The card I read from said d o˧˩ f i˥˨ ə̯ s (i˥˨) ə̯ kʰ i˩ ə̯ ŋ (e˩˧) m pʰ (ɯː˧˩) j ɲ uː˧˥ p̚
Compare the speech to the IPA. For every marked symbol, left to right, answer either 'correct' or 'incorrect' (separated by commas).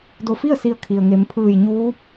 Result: incorrect, correct, correct